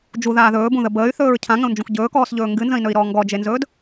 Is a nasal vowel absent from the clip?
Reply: no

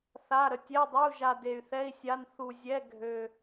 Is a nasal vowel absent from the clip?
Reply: yes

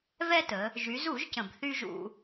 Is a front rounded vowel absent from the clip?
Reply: no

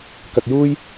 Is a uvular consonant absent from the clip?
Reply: yes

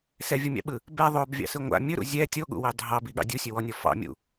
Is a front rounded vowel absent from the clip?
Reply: yes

